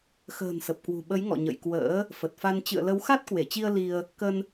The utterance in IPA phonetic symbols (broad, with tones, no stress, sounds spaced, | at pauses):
x ə̤ː˨˩ n s ə˨˩ p̚ k w ṳ˨˩ ɓ ə˨˦ j ŋ ɔ̰˧˨ ɲ ə̰˧˨ j k w ə̰ː˧˥ | f ə˨˩ t̚ f a˧ n t͡ɕ ɨ̰˧˨ ə̯ l ə˨˦ w x a˦˥ t̚ k w e˧˩ t͡ɕ i˧ ə̯ l i˧ ə̯ | k ə˧ n